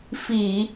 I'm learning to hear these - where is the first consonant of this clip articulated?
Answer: lips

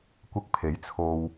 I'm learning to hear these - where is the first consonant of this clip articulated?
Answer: velum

